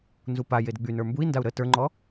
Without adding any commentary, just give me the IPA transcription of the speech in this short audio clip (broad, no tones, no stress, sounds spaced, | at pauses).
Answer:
n z u p a j e d ɡ͡b y n ə˞ m b u i̯ n d a u̯ ɾ ə t ə˞ ŋ͡ǃ ɔ